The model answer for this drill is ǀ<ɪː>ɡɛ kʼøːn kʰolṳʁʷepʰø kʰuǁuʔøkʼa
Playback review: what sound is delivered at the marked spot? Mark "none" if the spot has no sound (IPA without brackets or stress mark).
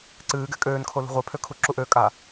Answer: ɨː